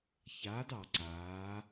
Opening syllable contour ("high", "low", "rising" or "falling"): rising